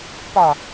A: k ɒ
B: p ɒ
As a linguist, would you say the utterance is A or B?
B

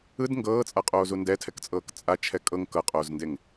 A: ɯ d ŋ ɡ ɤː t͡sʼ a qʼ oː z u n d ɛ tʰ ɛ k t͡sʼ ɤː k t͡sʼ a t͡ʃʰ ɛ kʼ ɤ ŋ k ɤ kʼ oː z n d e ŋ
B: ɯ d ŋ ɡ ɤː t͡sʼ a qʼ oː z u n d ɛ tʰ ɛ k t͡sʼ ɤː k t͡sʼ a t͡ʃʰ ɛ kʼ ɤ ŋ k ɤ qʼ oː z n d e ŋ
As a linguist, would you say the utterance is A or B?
B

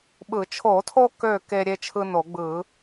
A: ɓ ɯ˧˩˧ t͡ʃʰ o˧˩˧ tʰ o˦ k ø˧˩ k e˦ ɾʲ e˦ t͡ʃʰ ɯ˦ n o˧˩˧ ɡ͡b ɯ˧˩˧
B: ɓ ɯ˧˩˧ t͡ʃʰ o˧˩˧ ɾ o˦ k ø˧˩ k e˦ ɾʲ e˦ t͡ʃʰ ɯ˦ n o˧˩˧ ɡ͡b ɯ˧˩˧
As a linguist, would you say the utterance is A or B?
A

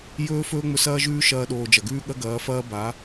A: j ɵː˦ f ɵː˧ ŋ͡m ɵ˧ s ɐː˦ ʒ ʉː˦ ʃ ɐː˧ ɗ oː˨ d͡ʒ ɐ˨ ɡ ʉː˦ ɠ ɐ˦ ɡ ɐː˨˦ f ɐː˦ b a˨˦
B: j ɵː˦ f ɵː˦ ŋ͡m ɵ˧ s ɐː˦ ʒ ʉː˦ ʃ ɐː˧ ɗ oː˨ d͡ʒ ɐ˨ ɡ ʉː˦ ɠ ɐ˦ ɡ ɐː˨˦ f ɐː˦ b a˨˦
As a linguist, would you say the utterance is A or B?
B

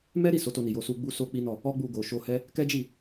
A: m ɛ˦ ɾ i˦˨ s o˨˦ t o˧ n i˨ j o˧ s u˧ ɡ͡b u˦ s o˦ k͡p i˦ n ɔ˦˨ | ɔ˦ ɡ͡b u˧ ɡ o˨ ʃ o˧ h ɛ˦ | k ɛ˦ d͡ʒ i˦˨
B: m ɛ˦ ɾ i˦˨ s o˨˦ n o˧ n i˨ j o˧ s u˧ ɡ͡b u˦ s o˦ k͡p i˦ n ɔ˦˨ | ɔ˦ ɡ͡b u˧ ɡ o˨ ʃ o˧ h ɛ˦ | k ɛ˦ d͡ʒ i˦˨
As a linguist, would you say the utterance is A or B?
A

